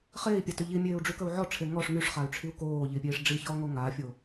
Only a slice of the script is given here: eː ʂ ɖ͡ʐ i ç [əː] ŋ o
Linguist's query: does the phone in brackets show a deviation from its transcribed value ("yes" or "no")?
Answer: yes